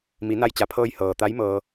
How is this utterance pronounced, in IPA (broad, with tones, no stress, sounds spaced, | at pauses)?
m i˩˧ n a˧ j t͡ɕ a˩˧ pʰ ɤː˧ j h ɤː˩ t̪ a˧˥ j m ɤː˧